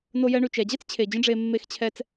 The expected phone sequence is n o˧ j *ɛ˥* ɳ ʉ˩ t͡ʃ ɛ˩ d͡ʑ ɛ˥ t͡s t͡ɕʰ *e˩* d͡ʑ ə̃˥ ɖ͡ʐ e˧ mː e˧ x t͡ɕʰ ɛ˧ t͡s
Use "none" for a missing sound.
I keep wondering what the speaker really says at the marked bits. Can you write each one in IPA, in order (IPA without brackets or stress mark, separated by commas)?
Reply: ɛ˧, e˩